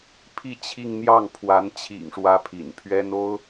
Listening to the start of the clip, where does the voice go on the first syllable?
falling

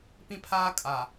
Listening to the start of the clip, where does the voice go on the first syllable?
high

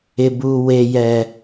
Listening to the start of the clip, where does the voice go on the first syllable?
low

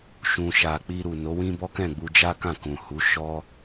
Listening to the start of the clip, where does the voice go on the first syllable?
low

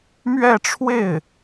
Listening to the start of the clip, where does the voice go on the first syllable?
falling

